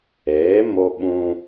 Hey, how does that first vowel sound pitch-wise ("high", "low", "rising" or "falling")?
rising